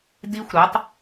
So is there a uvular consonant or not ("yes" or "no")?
no